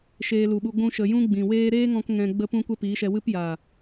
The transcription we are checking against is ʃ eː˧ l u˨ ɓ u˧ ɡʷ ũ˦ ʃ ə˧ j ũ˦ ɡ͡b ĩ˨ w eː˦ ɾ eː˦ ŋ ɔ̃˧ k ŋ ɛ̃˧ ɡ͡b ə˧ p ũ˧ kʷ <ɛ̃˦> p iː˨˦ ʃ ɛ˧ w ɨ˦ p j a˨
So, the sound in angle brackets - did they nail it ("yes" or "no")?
no